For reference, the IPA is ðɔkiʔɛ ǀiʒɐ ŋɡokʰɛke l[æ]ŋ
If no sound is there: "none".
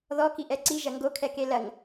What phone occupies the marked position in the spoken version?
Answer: ɐ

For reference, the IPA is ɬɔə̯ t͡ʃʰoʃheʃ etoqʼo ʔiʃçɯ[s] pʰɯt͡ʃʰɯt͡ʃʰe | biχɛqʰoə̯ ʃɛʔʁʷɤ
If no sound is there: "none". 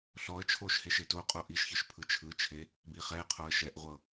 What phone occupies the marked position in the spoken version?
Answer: ʃ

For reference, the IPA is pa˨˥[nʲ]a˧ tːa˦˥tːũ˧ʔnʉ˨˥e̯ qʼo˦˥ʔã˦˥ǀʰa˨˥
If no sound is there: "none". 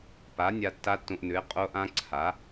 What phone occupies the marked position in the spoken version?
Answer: nʲ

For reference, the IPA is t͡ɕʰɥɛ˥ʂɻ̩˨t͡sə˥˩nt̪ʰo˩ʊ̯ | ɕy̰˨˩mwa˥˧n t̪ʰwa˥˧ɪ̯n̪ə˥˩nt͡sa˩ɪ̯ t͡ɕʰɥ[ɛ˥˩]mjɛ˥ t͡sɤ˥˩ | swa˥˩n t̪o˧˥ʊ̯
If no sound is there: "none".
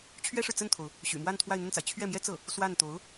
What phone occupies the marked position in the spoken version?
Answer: ɛ˥˩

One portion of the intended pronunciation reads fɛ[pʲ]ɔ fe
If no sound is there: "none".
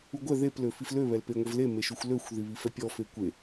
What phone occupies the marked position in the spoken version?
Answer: pʲ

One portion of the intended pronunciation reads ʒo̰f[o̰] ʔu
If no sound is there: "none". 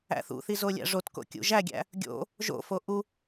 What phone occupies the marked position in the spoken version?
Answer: o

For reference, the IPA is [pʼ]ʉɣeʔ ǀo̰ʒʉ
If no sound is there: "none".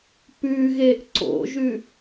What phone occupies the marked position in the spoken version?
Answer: p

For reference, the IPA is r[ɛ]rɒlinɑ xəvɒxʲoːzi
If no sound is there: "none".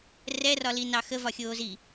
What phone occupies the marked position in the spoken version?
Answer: ɛ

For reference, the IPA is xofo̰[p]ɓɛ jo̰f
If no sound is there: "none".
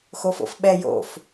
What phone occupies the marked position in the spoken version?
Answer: f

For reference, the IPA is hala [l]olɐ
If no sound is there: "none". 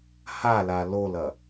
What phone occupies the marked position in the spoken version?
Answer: l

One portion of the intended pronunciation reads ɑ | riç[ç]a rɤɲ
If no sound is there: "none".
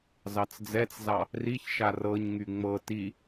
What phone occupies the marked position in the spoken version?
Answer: ʃ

